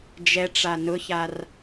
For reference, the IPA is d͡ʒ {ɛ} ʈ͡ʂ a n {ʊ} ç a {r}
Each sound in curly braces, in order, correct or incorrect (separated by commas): correct, correct, correct